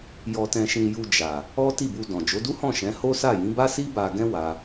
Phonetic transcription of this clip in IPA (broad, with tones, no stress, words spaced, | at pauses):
jɔ˧tɛ̃˧ʃĩ˧ ju˧d͡ʒa˨ | ɔ˦ti˦˨bu˧ dɔ̃˨ d͡ʒo˨˦du˦hɔ̃˦˨ ʃɛ̃˨˦ho˦sa˦˨ jĩ˨˦ba˦si˦ ba˧ɡɛ̃˦ wa˧